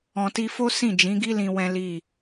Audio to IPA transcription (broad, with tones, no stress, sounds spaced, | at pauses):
ɔ̃˨ t i˧ f o˦ s ĩ˦˨ d͡ʒ ĩ˨˦ ɡ i˦ l ĩ˧ w ɛ̃˦ l i˦˨